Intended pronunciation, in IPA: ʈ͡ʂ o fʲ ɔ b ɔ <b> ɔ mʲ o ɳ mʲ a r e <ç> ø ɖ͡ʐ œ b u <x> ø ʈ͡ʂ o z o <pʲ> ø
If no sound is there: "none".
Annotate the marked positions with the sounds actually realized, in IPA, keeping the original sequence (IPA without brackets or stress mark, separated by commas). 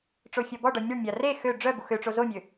ɖ, x, x, mʲ